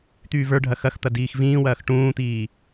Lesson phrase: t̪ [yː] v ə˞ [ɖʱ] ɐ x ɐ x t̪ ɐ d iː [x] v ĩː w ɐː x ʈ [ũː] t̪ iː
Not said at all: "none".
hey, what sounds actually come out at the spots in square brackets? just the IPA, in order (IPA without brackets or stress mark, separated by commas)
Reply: yː, ɖʱ, x, ũː